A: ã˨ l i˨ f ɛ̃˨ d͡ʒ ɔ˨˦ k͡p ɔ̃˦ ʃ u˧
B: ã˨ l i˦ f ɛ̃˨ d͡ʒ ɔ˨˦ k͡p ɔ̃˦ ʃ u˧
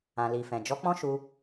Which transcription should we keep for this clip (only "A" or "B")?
A